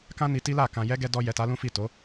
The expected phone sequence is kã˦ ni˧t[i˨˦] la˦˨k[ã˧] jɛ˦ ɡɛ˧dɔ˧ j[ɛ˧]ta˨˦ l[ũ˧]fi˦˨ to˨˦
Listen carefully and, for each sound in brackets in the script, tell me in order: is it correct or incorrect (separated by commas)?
incorrect, correct, incorrect, incorrect